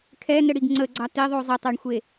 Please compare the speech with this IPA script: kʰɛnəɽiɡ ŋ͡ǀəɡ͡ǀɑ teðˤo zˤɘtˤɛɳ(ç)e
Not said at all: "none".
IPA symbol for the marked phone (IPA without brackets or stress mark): xʷ